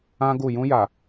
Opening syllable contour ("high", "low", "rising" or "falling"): high